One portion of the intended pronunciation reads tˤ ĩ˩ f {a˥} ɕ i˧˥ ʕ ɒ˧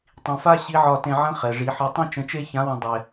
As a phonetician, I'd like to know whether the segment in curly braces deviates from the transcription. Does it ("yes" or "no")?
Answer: no